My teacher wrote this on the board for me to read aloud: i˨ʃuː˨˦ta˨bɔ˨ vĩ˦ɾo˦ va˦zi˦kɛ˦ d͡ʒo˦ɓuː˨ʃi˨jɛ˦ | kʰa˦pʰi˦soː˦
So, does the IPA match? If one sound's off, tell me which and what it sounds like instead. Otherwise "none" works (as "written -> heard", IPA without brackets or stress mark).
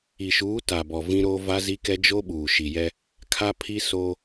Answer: none